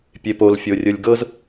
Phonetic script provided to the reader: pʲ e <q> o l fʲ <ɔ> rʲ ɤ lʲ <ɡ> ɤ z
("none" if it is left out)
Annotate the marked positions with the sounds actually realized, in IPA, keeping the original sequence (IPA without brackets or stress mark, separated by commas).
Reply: p, o, ɡ